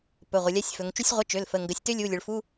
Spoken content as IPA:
p ɵ˩˧˩ ʁʷ ə˩˧ lʲ a˧˥˧ sʲ f ɵ˩˧ ŋ t͡ʃ u˥ sʲ ʁʷ ə˧˥˧ t͡ʃ ø˩˧˩ l f ə˩˧˩ ŋ ɡ ə˩˧˩ sʲ t ø˥ lʲ u˧˥˧ lʲ ɵ˩˧ ɭ f u˧˥˧

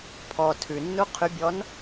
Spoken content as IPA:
pʰ ɔ tʰ ʉ nː u qʰ y bʲ ɔ n

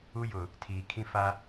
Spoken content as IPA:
u˦ j ʊ˨ | tʰ iː˨ kʰ ĩ˦ f a˦

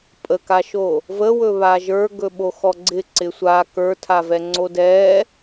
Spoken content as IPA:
pʼ ə k a ʃ o | v ə w ɵ β a ʒ ə˞ ɡ ɵ ɓ o x ɔ ɡ͡ǀ ɪ ǀ ɪ sʷ a k ə˞ tʰ a v ɛ ŋ͡ǀ o d ɛ

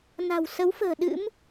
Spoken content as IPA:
n a̤˨˩ w s ə˨˦ w f ə̤ː˨˩ ɗ ɨ̰˧˥ m

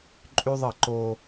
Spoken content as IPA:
ǃʼ y˦ ðˤ ə˦˨ ǃ oː˦

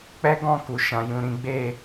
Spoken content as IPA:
k͡p ɛ˦ ɡ ɔ̃˦˨ k u˨ ʃ ã˨ j ũ˨ ɾ ĩ˨˦ ɡ͡b e˦˨

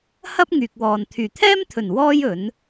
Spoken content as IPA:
h ɐ˥ p̚ ŋ yː˨ k̚ w ɔː˨ n t̪ʰ yː˨˩ t̪ʰ ɛː˥ m t̪ʰ ɵ˨˩ n w ɔː˥ j ɵ˨˥ n

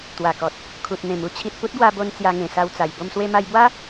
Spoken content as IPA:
t̪ w a˨˩ k ɔ˨ t̚ | kʰ u˨ t̚ n̪ ẽ˨˩ m u˦ t͡ɕʰ i˨ t̚ p u˦ t̚ ɡ w a˧ b o˧ n t͡s j a˧ ŋ ẽ˨˩ s a˧ w t͡s a˨˩ j b o˧ m s w e˧ m a˧ j b w a˦

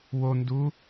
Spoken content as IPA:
w o n d u

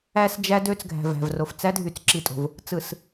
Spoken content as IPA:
æ˦ s d͡ʒ æ˦ d ø˦ t͡s ɡʱ æ̤˨ v æ̤˨ v r o˨ f t͡s æ˦ dʱ y˨ t͡s ǁ i˨ tʼ o̤˨ v | t͡s ɯ˨ s

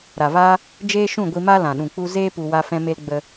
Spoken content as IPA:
ɾ a˨ v aː˦ | d͡ʒ eː˦ ʃ ũ˦˨ ɡʷ i˧ m a˦ l ã˨ ɗ ũ˨ k͡p u˦ z eː˦ p u˧ w a˦ f ɛ̃˦ m e˦ l ɡ͡b ə˧

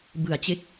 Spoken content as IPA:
b ɯ˨˩ a̯ t͡ɕ e˦˥ k̚

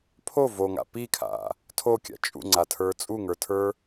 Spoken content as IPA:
pʰ o v o ŋ a̰ p i kʰ a̰ | tʰ o kʲ a̰ t͡ʃʼ ṵ ŋ͡ǀ a tʰ ə˞ t͡sʼ u ŋ ə˞ tʰ ə˞

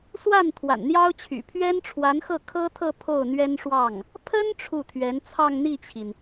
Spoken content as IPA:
s w a˥˩ n t̪ʰ w a̰˨˩ n n̪ j ɑ˥ ʊ̯ t͡ɕʰ y̰˨˩ pʰ ɥ ɛ˥ n ʈ͡ʂʰ w a˧˥ n x ɤ˥˩ kʰ ɤ˥ t̪ʰ ɤ˥˧ pʰ o˥˩ ʊ̯ n̪ ɥ ɛ˥ n ʂ w ɑ˥˩ ŋ | pʰ ə˥ n ʈ͡ʂʰ u˥˩ t̪ʰ ɥ ɛ˧˥ n t͡sʰ ɑ˥˧ ŋ n̪ i˥˩ t͡ɕʰ i˩ n

